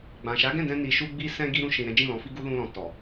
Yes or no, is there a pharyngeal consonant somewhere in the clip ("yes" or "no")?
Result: no